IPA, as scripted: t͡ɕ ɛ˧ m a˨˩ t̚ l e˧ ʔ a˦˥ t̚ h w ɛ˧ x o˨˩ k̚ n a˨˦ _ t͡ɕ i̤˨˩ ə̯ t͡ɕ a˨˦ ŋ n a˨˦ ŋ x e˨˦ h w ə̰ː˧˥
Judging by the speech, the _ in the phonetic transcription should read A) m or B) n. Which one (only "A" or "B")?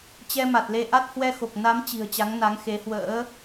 A